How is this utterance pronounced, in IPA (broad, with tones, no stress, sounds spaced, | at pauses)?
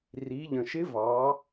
r i˩˧ ʎ ə̃˩ ʃ ɪ˧˥ v ɑ˩˧